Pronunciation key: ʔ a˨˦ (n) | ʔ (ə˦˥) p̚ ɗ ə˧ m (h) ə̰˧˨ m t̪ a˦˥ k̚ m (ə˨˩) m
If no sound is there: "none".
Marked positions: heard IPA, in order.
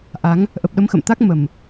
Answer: ŋ, ə˨˩, x, ə˨˩

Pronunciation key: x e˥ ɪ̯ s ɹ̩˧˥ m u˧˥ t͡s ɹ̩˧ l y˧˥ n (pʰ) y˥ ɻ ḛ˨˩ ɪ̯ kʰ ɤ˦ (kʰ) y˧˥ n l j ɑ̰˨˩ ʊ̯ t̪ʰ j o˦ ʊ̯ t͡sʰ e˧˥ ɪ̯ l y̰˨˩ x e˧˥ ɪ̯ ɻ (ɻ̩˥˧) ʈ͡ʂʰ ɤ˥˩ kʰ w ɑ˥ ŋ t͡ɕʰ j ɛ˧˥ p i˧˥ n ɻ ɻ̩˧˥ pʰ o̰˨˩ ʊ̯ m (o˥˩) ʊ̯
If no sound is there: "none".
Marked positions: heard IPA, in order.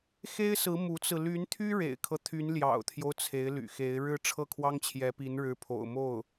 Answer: t̪ʰ, t̪ʰ, ɻ̩˥˧, o˥˩

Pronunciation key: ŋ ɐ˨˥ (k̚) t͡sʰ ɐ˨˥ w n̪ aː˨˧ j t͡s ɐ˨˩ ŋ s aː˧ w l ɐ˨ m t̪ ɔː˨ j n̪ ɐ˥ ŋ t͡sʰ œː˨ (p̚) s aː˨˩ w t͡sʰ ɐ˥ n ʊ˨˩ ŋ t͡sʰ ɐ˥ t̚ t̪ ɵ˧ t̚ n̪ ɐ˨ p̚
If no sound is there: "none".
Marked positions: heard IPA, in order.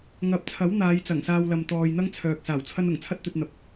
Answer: p̚, k̚

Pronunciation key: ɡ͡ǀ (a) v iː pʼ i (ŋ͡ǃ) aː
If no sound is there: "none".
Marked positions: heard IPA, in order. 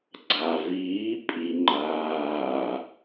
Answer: a, ŋ͡ǃ

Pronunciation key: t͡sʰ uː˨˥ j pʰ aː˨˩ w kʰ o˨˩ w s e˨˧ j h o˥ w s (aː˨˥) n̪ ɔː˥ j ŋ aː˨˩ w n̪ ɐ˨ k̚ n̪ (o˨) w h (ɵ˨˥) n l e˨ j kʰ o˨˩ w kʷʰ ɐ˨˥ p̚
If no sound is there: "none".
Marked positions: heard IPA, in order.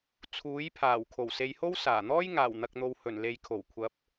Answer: aː˨˩, o˨, ɵ˨˩

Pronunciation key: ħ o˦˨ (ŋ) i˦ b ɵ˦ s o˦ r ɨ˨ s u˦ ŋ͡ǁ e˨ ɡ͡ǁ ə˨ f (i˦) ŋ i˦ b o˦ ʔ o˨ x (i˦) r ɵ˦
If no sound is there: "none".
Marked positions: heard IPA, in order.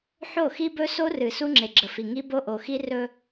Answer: x, i˨, i˦

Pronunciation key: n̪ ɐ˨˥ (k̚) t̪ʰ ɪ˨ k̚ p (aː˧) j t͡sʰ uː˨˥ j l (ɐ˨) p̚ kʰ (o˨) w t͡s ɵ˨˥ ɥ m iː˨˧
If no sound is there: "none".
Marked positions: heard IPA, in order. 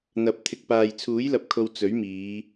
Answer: p̚, aː˨, ɐ˨, o˨

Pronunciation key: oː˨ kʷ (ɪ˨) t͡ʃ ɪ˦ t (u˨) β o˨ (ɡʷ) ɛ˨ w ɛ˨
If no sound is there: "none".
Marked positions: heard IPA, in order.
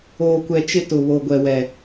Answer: ɛ˨, ʊ˨, ɡʷ

